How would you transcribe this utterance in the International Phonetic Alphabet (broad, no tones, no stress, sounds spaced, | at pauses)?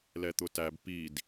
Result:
l ɛ t̪ ʊ t æ b p i d